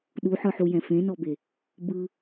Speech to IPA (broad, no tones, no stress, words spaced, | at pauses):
ɗuħɯħujɛ̃ fẽnɔbe | bɯ